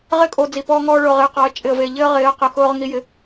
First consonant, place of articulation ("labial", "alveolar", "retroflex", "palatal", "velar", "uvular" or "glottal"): uvular